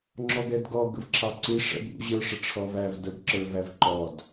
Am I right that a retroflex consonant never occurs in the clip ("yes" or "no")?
no